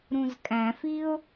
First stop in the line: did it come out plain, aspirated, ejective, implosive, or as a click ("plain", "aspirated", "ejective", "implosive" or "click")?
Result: ejective